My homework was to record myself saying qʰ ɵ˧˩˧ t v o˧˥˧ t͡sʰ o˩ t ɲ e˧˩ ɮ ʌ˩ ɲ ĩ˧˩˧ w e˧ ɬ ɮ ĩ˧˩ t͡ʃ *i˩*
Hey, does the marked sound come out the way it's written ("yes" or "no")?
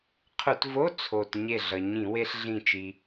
yes